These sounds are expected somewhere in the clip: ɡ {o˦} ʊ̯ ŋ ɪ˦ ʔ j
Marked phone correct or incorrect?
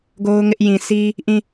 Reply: correct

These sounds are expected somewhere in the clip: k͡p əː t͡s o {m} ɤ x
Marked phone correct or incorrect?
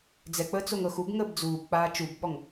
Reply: incorrect: ŋ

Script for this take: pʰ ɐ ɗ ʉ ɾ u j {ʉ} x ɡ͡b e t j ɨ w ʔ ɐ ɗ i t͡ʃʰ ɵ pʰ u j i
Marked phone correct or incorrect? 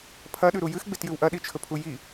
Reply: incorrect: ɨ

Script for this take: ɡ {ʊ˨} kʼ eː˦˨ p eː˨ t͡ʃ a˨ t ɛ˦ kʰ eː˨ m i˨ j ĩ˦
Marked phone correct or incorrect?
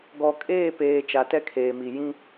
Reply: incorrect: ɔ˨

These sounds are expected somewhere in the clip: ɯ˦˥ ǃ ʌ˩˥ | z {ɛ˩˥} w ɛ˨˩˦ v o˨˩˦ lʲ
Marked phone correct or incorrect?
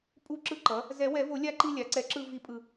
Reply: incorrect: ɛ˨˩˦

